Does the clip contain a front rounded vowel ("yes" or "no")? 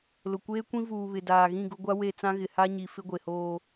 no